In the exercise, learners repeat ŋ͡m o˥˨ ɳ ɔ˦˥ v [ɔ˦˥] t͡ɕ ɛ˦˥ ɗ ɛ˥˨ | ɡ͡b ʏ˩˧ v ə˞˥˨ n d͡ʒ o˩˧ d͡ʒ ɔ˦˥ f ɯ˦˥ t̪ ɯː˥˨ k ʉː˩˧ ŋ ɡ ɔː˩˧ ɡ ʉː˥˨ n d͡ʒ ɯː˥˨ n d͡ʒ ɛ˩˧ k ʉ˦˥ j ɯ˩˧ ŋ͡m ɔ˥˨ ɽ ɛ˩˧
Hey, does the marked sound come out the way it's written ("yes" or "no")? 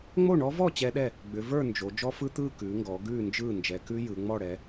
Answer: no